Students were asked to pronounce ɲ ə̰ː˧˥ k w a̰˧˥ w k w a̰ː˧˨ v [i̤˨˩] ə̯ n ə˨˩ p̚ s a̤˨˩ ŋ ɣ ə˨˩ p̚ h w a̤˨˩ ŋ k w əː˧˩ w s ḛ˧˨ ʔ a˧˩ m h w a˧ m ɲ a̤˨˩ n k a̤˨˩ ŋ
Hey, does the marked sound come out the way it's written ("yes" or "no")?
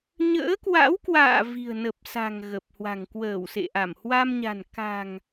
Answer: yes